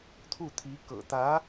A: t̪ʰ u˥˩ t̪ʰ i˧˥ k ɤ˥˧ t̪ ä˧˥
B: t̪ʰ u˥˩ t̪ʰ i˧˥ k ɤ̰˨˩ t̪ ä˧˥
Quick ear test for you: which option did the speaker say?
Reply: B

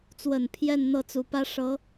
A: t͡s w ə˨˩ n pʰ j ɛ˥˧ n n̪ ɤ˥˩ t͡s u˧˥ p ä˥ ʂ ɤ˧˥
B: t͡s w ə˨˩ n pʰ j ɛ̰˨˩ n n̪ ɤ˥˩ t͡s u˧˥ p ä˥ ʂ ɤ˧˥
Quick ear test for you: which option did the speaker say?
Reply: A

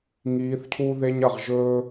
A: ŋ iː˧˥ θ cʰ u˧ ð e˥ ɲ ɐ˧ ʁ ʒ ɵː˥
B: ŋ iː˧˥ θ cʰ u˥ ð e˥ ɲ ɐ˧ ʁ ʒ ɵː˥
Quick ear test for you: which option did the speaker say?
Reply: B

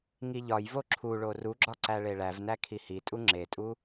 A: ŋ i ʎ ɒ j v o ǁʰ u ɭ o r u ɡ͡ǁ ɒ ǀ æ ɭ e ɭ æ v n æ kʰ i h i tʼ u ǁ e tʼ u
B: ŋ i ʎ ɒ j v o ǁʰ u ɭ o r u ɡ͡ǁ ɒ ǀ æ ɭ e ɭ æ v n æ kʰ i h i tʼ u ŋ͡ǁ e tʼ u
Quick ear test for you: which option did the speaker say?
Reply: B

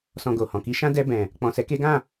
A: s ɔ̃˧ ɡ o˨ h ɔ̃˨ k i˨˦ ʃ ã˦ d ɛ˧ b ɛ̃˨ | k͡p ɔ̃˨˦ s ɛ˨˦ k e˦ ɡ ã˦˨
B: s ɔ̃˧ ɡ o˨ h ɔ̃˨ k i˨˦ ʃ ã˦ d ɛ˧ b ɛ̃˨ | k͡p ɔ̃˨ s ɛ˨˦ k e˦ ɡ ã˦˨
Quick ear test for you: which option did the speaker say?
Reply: B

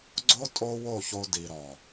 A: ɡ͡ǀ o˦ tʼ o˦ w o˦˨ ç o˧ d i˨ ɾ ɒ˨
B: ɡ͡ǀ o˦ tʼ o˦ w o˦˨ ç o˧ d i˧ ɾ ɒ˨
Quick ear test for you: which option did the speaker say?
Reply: A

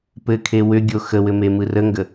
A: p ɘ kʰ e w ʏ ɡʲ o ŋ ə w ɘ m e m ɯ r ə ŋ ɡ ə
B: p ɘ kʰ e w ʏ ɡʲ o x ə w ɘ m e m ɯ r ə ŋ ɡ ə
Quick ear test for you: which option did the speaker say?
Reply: B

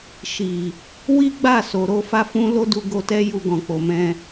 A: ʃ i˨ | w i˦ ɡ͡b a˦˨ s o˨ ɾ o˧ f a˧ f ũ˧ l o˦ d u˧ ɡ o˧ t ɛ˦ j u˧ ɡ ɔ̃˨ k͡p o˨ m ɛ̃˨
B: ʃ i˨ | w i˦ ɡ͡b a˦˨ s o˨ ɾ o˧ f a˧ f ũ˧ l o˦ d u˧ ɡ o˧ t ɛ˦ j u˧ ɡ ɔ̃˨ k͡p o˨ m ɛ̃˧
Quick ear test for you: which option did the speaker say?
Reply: B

